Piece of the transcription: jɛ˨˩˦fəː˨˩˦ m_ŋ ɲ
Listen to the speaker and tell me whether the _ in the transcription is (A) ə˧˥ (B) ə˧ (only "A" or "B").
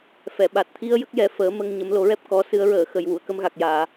B